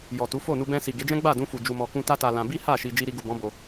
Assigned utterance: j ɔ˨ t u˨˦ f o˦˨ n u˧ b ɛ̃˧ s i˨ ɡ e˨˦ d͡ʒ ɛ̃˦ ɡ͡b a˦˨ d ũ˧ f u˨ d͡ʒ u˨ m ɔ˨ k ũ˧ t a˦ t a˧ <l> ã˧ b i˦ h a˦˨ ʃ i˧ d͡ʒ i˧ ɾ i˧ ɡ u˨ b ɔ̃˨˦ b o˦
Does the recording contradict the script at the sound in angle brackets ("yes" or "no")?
no